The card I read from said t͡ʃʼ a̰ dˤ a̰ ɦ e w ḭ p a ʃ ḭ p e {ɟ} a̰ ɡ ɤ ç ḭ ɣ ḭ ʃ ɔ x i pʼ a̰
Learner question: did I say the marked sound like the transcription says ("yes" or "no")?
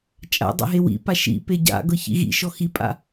yes